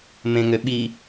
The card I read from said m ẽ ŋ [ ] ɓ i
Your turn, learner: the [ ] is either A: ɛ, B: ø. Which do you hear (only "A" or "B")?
B